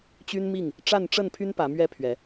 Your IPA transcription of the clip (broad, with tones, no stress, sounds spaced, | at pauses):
t͡ɕ y˦ n m i˥˨ ŋ | ʈ͡ʂ a˥˨ n ʈ͡ʂ ə˥˨ n pʰ y˦ n p ä˨˦ m ɥ ɛ˦ pʰ ɥ ɛ˨˦